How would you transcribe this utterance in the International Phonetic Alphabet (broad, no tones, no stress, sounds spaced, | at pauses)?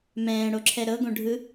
m ɛ̃ː ɽ o ǁʰ ɛ ɾ ɤ ɡ õ ɖʱ ɯ